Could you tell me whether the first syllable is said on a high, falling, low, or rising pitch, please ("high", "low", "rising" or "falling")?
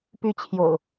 falling